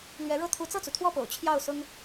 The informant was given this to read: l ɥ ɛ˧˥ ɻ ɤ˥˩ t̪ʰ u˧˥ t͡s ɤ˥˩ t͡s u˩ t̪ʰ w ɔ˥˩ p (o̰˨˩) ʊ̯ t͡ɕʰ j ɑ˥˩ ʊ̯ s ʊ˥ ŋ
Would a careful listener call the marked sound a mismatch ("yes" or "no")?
no